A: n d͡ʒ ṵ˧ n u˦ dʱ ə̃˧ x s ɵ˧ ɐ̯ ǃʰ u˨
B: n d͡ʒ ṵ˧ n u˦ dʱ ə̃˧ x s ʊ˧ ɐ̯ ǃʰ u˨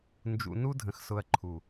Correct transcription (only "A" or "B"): B